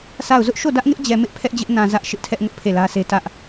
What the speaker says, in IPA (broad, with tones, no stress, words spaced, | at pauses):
sʰa˦˨ʊ̯ zʊ˦ʔʃo˦˨ dä˦ʔŋɪ˦ʔd͡ʑɛ˨mɪ˦ʔ pʰɛ˦ʔd͡ʑɪ˦ʔ nã˨ zä˦ʔʃɪ˦ʔtʰɛ˦ʔ ŋʊ˦ʔpʰe˦˨lä˦sʰe˦ tä˦ʔ